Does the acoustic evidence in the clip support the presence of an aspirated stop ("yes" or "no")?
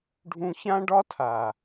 yes